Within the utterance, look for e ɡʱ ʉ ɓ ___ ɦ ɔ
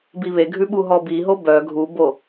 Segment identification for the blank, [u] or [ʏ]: u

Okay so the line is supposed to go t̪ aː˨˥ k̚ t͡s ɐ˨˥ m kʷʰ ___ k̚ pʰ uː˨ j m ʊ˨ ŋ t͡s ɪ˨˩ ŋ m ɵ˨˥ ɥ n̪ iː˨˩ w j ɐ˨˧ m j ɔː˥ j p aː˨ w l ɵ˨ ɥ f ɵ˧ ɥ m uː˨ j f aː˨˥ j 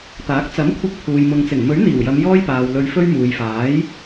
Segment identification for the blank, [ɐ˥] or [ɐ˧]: ɐ˧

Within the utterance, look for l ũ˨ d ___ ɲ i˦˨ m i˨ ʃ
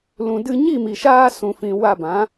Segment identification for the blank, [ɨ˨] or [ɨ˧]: ɨ˧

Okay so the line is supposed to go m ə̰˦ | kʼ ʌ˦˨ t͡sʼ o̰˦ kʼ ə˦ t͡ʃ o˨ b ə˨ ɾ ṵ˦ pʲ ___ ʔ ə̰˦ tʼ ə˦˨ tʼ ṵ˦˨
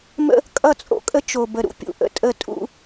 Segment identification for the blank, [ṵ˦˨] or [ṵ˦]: ṵ˦˨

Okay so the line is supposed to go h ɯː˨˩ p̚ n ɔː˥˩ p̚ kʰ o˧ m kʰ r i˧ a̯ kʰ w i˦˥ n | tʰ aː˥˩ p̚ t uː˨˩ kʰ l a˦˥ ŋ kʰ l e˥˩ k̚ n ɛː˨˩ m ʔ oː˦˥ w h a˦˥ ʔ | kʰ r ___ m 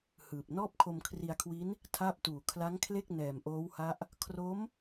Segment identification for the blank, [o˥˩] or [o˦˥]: o˦˥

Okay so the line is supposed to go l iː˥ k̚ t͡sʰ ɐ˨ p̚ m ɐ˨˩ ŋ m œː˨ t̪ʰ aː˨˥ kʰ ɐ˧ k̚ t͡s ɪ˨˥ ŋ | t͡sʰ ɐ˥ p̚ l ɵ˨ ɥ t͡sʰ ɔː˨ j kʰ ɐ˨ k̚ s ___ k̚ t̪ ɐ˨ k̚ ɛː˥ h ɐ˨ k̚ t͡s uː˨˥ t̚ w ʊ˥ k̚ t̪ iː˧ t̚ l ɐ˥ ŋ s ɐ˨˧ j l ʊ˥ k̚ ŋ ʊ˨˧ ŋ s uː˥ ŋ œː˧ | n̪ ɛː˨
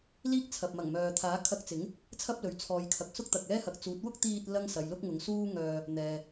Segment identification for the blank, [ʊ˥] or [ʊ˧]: ʊ˥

